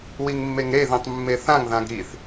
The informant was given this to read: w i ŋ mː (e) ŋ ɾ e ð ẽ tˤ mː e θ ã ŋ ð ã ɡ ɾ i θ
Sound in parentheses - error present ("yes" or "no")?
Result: no